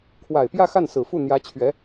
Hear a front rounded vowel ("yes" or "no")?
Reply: no